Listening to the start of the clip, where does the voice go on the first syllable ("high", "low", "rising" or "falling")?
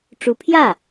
rising